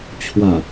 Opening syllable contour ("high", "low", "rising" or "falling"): low